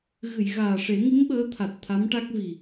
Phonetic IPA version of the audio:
ɣ ɨ˨˩˨ j ɣ aː˨˩ ʂ e˨˩˦ ŋ i˧˥ m ɓ əː˧˥ t̪ʰ a˨˩ t̚ t̪ʰ a˧˥ m ʈ a˦˥ k̚ v i˨˩

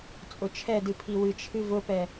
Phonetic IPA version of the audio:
t͡sʼ ʊ t͡ʃʰ ɛ d ɨ pʰ i w ɨ t͡ʃʰ ɨ v ʊ p ɛ

